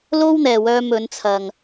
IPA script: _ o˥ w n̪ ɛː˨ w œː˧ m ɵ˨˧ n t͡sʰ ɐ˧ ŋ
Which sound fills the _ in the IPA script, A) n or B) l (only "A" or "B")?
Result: B